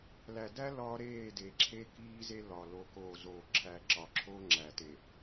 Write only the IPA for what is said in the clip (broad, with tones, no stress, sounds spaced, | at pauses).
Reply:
l æ˨ d æ˦ l ɒ˦ ɾ eː˦˨ d e˨ ǁʰ e˦ k iː˦ z e˦ l ɒ˨ l o˨ k oː˨ z oː˨ ǁʰ æ˦ ǁ ɒ˨ ǁʰ o˦ ŋ͡ǁ æ˨ t e˨